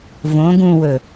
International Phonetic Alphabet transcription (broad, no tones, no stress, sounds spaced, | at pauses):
v õ ɡ ũ w ɵ